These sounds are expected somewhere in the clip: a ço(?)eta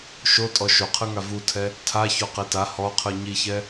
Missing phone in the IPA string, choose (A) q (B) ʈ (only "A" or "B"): A